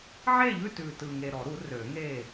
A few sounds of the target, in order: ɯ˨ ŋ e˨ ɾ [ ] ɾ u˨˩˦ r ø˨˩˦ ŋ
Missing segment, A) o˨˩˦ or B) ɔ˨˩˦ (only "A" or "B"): B